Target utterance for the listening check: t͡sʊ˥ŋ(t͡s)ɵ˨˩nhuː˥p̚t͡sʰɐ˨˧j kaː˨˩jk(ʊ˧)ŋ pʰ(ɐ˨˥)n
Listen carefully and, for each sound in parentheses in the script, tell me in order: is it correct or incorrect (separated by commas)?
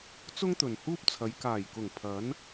incorrect, incorrect, correct